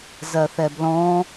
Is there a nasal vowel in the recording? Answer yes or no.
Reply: yes